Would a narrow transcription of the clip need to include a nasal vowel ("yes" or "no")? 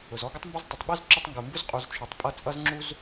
no